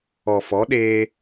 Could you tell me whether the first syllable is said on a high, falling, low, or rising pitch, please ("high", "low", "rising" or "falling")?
low